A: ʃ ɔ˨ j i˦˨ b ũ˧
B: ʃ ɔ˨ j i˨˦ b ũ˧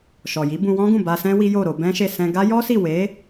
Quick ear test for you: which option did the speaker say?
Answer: B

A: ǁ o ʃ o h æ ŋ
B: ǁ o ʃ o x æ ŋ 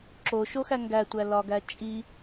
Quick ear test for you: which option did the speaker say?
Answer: B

